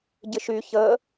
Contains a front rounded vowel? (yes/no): yes